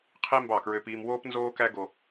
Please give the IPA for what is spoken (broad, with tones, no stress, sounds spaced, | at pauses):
qʰ i˦ m b ɑ˦˨ k ɹ ø˦ p iː˦ m w oː˦ p n z oː˦ k æ˦ ɡ o˦